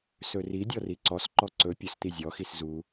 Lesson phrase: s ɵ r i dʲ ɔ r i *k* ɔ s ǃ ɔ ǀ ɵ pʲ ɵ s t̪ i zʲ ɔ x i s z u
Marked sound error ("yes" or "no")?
yes